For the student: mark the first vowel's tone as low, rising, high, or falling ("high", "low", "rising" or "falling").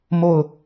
falling